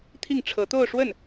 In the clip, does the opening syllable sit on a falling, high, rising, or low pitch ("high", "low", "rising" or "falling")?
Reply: falling